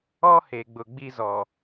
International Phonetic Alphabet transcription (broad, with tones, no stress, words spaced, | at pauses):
ɔ˦ he˨ɡ͡bʊ˨ɡ͡bi˦zɔ˨